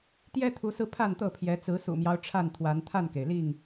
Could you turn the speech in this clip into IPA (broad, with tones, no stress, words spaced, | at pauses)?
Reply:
t̪jɛ˦t̪ʰu˨˦sɹ̩˧ pʰa˥˨nt̪ɤ˥˨pʰjɛ˨˦ t͡sɹ̩˨˦sṵ˨˩mjɑ˦ʊ̯ ʈ͡ʂʰa˥˨nt̪ʰwa˨˦n t̪ʰa˥˨nke˩ɪ̯li˥˨ŋ